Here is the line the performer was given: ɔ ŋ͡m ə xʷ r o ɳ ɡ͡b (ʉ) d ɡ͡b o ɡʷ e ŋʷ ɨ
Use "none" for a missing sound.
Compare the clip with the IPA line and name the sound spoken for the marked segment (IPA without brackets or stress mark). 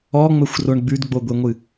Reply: ʉ